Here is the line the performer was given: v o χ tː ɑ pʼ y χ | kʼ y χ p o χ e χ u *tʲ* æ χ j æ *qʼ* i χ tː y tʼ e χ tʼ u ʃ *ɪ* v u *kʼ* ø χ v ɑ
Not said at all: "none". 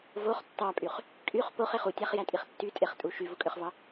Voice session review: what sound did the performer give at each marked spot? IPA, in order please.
tʲ, tʼ, y, kʼ

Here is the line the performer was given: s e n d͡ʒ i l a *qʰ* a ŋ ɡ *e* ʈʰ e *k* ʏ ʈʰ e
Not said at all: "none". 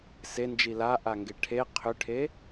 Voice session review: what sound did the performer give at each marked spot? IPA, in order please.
ʔ, e, qʰ

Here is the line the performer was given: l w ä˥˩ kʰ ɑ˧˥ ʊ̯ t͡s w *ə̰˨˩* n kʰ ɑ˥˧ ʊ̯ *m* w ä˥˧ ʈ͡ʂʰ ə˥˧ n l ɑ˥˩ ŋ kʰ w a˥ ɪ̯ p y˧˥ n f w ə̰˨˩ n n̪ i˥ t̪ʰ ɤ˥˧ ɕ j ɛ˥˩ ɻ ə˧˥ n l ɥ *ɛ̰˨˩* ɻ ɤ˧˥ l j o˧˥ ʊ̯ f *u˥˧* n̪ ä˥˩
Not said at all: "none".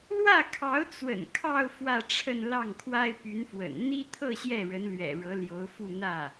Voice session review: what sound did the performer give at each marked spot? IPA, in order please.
ə̰˨˩, f, ɛ̰˨˩, u˥˧

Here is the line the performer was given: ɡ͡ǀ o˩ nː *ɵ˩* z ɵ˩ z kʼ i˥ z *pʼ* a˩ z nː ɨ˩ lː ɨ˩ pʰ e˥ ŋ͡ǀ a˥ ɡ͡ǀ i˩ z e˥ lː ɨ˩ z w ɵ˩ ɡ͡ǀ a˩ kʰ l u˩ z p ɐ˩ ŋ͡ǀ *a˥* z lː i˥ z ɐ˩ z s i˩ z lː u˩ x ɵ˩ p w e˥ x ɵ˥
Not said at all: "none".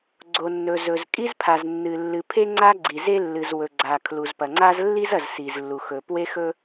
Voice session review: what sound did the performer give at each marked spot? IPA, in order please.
ɵ˩, pʰ, a˥

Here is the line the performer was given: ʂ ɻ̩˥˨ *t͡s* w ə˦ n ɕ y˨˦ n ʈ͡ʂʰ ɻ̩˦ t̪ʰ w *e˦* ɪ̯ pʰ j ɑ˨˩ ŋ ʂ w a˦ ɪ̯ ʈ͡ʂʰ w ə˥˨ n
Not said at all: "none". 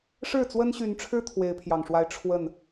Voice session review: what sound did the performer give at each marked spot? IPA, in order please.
t͡s, e˨˦

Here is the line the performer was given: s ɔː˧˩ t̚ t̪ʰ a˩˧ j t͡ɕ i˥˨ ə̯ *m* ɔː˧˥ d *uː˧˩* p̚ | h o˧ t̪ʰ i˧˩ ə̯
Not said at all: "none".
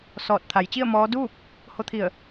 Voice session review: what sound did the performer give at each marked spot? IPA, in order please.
m, uː˥˨

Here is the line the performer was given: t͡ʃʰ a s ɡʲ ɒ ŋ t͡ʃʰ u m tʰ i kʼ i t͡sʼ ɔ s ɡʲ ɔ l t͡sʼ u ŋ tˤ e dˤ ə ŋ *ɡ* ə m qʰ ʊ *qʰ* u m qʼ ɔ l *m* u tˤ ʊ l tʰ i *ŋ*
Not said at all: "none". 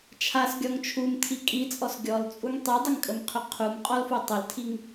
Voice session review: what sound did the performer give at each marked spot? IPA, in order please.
kʼ, qʰ, f, ŋ

